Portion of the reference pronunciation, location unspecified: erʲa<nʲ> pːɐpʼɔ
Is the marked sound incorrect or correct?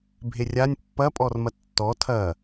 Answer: correct